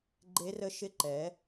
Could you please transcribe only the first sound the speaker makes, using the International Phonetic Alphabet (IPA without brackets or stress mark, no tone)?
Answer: ɡ͡ǃ